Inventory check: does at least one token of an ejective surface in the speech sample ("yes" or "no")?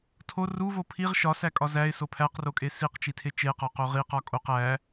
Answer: yes